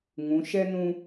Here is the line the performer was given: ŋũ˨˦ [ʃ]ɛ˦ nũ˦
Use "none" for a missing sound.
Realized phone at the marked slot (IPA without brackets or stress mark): ʃ